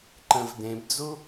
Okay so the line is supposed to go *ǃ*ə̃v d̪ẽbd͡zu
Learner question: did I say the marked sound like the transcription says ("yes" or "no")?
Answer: yes